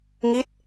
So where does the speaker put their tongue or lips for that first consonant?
velum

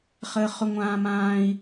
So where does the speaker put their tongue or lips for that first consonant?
uvula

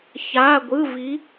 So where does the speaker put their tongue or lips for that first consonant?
palate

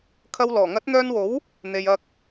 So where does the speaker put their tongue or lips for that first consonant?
velum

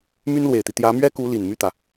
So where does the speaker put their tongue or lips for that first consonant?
lips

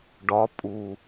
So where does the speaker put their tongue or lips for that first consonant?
retroflex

